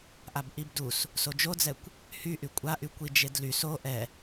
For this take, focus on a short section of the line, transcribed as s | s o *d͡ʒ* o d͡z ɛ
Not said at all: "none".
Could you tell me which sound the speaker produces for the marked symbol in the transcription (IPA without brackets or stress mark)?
d͡ʒ